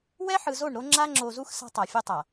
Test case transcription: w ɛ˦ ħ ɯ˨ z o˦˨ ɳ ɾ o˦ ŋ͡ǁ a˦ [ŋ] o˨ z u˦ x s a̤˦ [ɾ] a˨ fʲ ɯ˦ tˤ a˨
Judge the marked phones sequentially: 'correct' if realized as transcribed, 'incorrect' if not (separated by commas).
incorrect, incorrect